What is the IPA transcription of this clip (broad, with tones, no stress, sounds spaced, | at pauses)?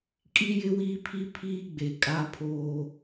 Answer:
kʼ i˦ j ɪ˦ w iː˦ pʰ i˦ pʰ iː˦ ɡ͡b e˨ kʼ a˦ pʰ oː˦